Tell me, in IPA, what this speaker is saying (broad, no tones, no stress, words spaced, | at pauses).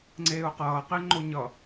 ŋ͡ǀeːʊ̯qʌːqeŋ͡ǃo ɲʌ